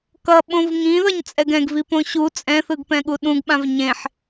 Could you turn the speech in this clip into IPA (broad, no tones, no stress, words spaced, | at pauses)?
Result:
kʌ ɓõvŋĩðʌɲ t͡sʼɛɡɛ̃ɡvipõ ɕu t͡sʼɛ̃θɯɡpɛ̃ ɠuɗũɡɓãv ɲẽħ